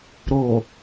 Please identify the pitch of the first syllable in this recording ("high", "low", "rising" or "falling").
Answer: low